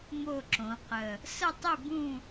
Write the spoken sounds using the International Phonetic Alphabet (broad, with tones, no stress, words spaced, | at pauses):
mo˦˨ǁõ˩˧qə˨˩ | sə˦˨tˤi˦˨bũ˦˨